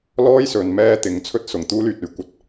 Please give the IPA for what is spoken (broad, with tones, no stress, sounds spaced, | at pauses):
l ɔː˥ j s ɵ˨˧ n m ɛː˥ t̪ ɪ˨˥ ŋ t͡sʰ ɵ˥ t̚ s ʊ˨˩ ŋ t̪ uː˥ l yː˨ t̚ ɵ˥ ɥ kʷ ɐ˨ t̚